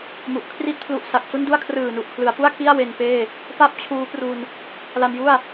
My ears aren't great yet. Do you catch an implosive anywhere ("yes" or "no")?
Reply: no